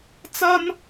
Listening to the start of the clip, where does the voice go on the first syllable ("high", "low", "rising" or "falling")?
high